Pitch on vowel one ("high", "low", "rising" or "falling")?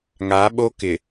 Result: rising